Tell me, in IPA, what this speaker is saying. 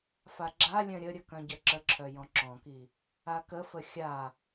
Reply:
f a ɡ͡ǁ a lʲ œ̃ ɾʲ ə ɾʲ ə k œ̃ ɟ œ ǁ ə ǁʰ œ j ɔ̃ ǁ ɔ̃ k i | a k ə f ə xʲ a

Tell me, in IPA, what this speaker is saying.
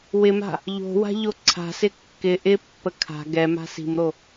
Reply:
w ɪ m a̤ | ʎ o̤ w a̤ ʎ o ǀʰ a̤ s ɪ kː ɪ ʔ ɪ pː ə kʰ a̤ ɡ ɛ m a̤ s i̤ m ɾ o

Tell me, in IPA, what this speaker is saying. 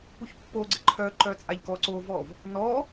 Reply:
p u ç pː o ɡ͡ǀ ɘ ǃʰ œ ǃ œ t͡sʼ a ʎ k ɔ ǀ o v ɔ v | n ɔ

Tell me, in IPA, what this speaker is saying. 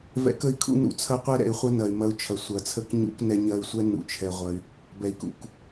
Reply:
v ɛ̰˨˦ k ə˧ i̯ kʰ ṵ˧ n ṵ˨ t͡sʰ ɐ˦ qʷ ɛ˦ ɾ ɛ̰˨ y̯ χʷ ɐ˦ n ɐ˨ y̯ m ɐ˧ u̯ t͡ʃʰ ɐ˨ sʷ ɐ˨ t͡sʰ ə˧ k ɲ ṵ˧ k n ɛ˧ ɲ ɐ˧ y̯ sʷ ɛ˦ n ṵ˨ t͡ʃʰ ɛ˨ ʁʷ ɐ˧ y̯ | b ɛ˨ i̯ k ṵ˨ k

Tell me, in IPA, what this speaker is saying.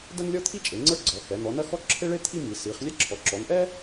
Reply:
d ɐ˥ n lʲ ɔ˥ t̪ʰ i˥ t͡ʃʼ e˩˧ ŋ͡ǀ ə˞˥ ɡ͡ǀ ɔ˩˧ x ɛ˩˧ n̪ ɔ˩˧ n ɐ˥ x ɔ˥ ǁʰ e˥ ɭ e˥ t̪ʰ i˥ m i˩˧ s i˩˧ χ lʲ ɛ˥ ǁʰ ɔ˩˧ ǁ ɔ˩˧ n ʔ ɛ˥

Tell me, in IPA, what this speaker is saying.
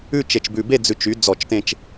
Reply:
ʉ˥˧ t͡ʃ e˧ t͡ʃ b ʉ˧ b e˥˧ d͡z ʉ˧ t͡ʃ y˨˥ d͡z ɔ˧˩˧ t͡ʃ t ẽ˧ t͡ʃ

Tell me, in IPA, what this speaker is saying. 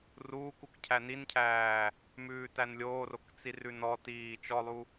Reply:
r uː k u k cʰ æ n i n cʰ æː | m ʉː t æ n lʲ oː r o k t͡s i r ʉ n ɔ t iː t͡ʃ ɔ lˠ u

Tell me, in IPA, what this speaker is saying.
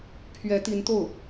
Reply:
pʰ ɥ ɛ˧˥ t̪ i˧˥ n t̪ o˥˩ ʊ̯

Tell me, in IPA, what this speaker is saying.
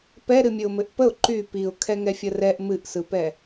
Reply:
p ɛ ɾ ɨ mʲ ɘ ʊ̯ m ɘ ʔ p ə ʊ̯ ǃ y p i ʊ̯ kʰ ɛ ŋ ɛ fʲ ə r ɛ ʔ m ɨ ʔ s ɯ p ɛ

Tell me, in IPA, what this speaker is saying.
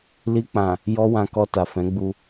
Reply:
l i˧ k͡p ã˨ | j ɔ˦ w ã˧ k ɔ˧ t a˨ f ɛ̃˨˦ ɡ͡b u˧

